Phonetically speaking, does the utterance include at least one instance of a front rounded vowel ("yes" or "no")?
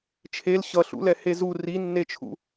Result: no